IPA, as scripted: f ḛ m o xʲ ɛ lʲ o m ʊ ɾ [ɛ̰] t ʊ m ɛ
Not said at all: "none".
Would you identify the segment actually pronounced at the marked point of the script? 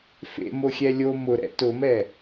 ɛ̰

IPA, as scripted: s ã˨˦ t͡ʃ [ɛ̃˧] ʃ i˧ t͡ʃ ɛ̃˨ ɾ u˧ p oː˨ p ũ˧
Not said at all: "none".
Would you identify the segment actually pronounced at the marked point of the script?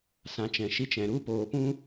ɛ̃˨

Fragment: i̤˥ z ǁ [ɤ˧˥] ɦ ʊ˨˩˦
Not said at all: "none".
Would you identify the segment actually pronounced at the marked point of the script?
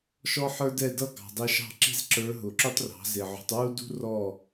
ə˞˧˥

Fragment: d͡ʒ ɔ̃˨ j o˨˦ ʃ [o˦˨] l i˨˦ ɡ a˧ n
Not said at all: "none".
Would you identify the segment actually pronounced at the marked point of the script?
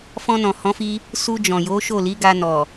o˦˨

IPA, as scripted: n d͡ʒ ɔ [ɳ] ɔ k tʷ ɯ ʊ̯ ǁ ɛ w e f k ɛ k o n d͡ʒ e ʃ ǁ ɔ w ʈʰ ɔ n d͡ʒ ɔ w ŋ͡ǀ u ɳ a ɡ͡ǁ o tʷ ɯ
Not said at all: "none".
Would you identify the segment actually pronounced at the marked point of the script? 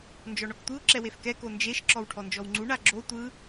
ɳ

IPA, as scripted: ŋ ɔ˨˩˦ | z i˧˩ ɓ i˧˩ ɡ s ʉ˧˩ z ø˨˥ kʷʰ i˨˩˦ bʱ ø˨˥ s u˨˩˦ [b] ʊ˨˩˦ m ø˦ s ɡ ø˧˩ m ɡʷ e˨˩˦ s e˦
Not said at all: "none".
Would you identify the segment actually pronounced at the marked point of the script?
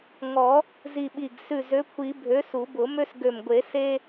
b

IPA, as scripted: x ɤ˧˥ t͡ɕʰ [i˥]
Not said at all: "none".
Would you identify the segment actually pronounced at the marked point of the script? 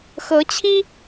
i˥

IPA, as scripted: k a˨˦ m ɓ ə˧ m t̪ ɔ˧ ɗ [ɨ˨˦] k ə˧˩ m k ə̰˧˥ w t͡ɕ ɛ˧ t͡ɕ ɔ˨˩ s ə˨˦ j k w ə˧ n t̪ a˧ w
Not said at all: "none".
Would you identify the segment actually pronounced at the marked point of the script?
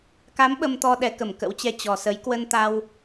ɛ˨˦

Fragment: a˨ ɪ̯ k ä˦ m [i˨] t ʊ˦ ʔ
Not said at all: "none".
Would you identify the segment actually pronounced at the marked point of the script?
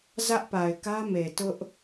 e˨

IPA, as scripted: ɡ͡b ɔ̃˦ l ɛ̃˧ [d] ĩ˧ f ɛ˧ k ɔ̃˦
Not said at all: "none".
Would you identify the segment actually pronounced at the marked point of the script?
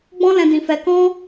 d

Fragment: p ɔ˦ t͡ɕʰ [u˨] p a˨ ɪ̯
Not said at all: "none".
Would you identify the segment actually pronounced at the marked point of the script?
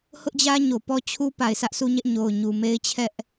u˦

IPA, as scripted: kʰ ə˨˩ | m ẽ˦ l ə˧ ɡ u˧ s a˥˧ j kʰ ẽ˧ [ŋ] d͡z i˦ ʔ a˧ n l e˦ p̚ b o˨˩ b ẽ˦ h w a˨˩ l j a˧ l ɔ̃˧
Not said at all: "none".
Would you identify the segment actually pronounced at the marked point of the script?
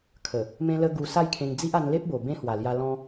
ŋ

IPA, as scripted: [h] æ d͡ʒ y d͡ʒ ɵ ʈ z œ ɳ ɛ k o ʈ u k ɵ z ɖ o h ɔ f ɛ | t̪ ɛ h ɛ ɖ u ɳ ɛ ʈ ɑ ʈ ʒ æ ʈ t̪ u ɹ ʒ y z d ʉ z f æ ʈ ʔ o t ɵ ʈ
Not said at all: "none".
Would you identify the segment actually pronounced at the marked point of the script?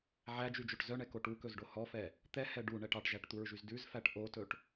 ʕ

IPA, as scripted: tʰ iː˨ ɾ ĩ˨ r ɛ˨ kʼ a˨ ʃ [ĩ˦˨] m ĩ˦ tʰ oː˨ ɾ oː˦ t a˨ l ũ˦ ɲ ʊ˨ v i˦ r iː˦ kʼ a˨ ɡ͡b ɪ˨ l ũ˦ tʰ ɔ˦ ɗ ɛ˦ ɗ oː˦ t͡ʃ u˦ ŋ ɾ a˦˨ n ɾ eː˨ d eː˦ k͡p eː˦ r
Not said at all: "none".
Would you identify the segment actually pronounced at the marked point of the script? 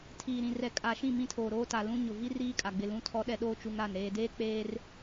ĩ˦˨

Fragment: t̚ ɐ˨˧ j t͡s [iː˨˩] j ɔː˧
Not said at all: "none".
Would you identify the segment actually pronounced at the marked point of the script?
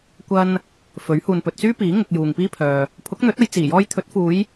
iː˨˩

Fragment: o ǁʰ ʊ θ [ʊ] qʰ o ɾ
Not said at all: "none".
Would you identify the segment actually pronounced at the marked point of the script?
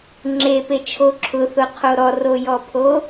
ʊ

